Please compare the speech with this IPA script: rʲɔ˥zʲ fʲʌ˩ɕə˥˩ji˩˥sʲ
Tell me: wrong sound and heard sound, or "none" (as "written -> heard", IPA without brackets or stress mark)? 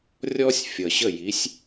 zʲ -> sʲ